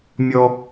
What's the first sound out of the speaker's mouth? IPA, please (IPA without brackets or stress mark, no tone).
mʲ